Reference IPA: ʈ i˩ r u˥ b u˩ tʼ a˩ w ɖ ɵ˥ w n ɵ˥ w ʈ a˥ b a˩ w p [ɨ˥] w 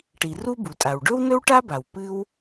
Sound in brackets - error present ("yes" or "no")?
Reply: no